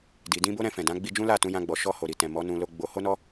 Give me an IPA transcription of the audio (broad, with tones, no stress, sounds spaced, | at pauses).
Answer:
d i˨ d ĩ˧ b o˦ ɾ ɛ̃˧ f ɛ̃˨ d ã˨˦ ɡ͡b i˧ d͡ʒ ũ˦ l a˦˨ t ũ˧ j ã˧ ɡ͡b ɔ˨ ʃ ɔ˧ h o˨ ɾ i˨ t ɛ̃˨ m ɔ˨˦ n ũ˧ l o˧ ɡ͡b o˧ h o˦ n ɔ˦